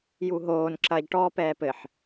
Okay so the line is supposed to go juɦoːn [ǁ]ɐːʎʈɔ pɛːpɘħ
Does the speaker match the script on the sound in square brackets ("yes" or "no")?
yes